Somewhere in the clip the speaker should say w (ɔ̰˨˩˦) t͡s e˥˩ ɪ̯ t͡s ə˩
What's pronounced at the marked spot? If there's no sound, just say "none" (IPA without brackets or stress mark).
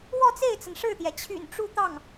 ɔ˥˧